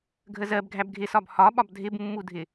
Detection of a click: absent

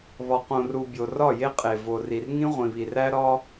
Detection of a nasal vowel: present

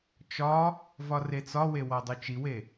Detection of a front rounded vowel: absent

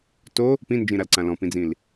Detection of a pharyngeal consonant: absent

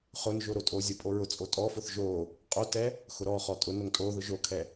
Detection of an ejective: present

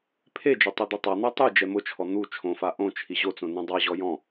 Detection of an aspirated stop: present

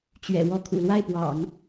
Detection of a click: absent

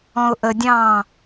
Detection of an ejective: absent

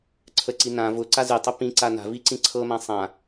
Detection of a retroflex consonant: absent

